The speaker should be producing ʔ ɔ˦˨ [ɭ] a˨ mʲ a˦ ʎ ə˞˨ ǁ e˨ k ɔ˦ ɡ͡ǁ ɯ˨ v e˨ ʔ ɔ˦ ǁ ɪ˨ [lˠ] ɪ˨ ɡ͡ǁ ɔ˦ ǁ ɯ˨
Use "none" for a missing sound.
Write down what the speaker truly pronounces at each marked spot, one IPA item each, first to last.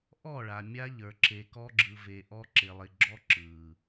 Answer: ɭ, lˠ

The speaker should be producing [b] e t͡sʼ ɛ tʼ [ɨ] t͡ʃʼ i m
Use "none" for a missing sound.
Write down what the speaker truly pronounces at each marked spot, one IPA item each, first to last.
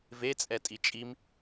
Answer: v, i

